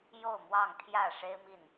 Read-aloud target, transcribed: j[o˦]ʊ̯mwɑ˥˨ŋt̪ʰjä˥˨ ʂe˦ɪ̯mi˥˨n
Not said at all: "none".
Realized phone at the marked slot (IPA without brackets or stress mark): o˥˨